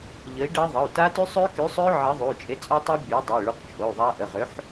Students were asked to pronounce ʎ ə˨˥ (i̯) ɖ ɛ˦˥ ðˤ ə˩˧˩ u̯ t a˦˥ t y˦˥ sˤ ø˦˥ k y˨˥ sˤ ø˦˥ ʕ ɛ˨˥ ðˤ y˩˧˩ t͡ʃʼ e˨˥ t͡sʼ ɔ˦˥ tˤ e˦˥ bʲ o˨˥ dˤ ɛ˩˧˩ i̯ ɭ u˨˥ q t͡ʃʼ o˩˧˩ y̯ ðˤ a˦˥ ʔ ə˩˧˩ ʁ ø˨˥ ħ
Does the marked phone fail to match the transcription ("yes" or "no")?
no